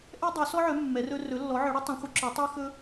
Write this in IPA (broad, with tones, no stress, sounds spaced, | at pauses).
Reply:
ʔ ɛ˦ dˤ ø˨˦ s ɔ˦ ʕ œ˨˦ mː ɛ˨˦ r ɵ˦ r ɵ˨˦ lː ɔ˨˦ ʕ œ˨˦ ɽ ø˦ tˤ œ̃˨˦ χʷ œ˨˦ ǁ œ˨˦ tˤ ɛ˦ x ɵ˦